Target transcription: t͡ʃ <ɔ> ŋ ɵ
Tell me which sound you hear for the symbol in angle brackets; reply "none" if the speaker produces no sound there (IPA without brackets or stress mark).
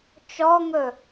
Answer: ɔ